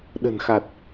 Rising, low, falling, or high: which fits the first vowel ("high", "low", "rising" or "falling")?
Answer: low